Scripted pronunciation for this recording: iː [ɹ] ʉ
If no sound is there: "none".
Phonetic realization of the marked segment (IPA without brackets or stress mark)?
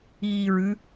ɹ